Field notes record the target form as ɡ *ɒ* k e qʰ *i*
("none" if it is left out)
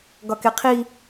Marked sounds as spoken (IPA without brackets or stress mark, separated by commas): ɒ, i